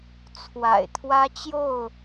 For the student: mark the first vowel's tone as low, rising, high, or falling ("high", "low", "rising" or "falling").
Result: low